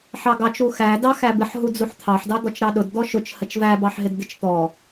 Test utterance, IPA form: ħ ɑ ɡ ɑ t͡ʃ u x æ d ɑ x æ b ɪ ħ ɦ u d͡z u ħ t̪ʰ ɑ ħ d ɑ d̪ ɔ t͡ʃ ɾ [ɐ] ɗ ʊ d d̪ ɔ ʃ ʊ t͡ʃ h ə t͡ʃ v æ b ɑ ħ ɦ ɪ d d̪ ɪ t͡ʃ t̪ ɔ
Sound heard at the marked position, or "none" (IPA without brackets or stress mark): ɑ